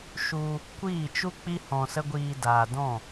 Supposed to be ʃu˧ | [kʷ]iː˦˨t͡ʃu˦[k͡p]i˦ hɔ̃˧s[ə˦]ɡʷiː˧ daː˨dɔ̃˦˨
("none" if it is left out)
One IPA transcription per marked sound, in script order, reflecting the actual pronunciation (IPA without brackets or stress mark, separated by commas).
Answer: kʷ, k͡p, ə˦